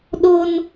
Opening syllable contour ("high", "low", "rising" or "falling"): high